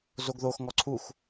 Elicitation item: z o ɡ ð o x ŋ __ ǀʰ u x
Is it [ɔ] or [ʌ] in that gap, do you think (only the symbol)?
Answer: ɔ